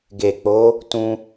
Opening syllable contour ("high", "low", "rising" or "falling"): low